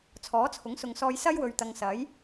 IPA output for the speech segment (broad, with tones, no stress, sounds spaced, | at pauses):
t͡sʰ ɔː˨˥ t͡sʰ ʊ˨˥ ŋ s ʊ˨ ŋ s ɔː˧ j s ɐ˥ j w ɵ˨ ɥ t̪ ɐ˨ ŋ s ɐ˨˥ j